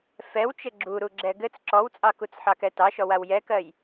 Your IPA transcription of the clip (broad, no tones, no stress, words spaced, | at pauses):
fɛwt͡ʃɘ ɡ͡ǁuɾuɡ͡ǁɛ ɡɘt͡s ǁɔwt͡sʼɑkut͡s ħɑkɛtɑʃɔ wawjɛkɜj